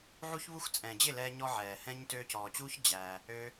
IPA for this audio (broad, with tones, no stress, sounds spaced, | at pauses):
ʕ u˦ ç β u˦ x t͡sʼ ɛ̃ː˨ d͡ʑ ɪ˦˨ l ɛː˧ ɲ ɔ˧ ʕ ɛː˨ h ɛ̃˦ ɲ t øː˧ c ɔː˨ t͡ɕ uː˦ ç d͡ʑ æ˧ | ø˦